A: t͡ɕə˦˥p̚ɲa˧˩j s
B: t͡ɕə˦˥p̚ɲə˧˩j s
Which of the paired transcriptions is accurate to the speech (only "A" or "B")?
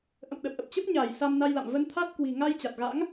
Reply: A